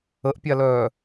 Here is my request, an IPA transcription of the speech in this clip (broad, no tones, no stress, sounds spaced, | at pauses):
ə ʔ pʲ a l œː